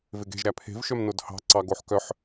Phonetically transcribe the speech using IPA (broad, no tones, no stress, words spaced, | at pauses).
veɡe̤ʒɾæ pʰe̤vʃœm nodhɑ̤ ǀɑɡoħkœħ